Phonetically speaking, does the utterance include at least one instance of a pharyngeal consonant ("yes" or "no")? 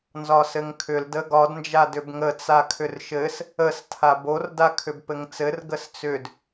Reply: no